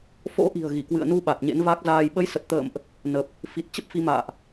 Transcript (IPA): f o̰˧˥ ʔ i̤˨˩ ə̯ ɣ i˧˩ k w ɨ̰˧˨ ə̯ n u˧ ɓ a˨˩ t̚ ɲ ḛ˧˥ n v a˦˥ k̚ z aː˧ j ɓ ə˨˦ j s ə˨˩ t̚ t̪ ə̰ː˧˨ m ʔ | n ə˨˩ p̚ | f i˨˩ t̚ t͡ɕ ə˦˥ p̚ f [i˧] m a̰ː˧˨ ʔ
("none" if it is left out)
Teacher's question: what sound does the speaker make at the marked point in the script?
i˧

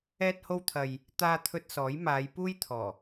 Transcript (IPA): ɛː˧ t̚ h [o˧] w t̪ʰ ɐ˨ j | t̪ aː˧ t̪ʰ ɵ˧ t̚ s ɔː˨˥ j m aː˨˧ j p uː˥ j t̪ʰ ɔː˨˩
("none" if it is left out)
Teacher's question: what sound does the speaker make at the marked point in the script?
o˧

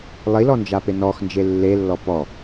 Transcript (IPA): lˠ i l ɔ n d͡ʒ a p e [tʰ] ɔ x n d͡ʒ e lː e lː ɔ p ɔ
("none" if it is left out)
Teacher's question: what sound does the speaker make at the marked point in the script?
n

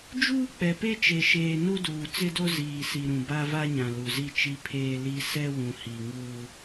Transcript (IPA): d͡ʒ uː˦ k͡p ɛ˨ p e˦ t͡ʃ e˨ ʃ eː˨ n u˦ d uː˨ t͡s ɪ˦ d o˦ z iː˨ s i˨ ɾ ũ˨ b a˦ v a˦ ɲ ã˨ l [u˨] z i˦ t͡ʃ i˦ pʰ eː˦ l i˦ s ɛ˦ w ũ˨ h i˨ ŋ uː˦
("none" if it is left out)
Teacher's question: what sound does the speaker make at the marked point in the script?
u˨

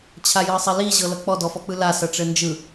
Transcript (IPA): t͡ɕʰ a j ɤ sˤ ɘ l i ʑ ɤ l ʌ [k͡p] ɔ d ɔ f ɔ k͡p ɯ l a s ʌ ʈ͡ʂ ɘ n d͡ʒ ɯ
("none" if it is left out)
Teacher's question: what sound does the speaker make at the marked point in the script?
k͡p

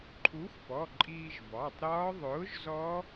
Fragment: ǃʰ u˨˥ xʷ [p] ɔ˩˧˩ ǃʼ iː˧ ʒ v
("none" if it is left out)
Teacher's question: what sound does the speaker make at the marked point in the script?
p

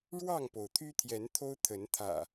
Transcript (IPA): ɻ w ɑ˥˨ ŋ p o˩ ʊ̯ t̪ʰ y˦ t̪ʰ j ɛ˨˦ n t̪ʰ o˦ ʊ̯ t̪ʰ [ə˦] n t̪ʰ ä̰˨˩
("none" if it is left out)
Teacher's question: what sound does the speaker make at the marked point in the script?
ə˨˦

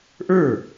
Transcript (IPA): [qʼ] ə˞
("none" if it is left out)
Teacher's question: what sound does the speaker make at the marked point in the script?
ʔ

